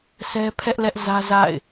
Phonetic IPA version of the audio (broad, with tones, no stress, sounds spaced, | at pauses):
s ɛ˦ pʰ ɛ˦ ʔ l ɛ˦ ʔ z ä˦ z a̰˦˨ ɪ̯